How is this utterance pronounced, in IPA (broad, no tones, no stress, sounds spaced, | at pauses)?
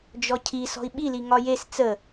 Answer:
d͡ʒ ɔ cʰ i s ɔ̤ i̯ ɓ i l i ŋ ɒ j e s t͡s ə